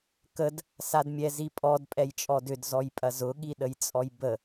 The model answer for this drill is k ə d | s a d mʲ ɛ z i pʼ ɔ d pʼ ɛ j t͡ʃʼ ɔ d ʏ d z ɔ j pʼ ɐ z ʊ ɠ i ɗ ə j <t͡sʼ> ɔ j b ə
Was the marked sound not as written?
no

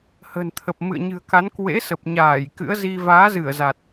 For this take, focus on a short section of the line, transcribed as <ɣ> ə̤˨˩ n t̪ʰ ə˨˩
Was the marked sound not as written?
yes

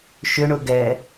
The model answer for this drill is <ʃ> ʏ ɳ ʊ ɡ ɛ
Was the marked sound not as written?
no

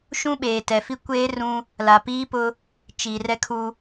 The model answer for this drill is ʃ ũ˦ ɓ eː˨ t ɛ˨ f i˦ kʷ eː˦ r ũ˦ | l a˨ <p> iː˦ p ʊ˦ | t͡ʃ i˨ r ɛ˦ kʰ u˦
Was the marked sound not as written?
no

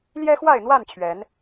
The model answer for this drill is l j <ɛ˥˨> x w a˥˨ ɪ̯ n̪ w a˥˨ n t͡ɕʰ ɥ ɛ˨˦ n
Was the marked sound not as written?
yes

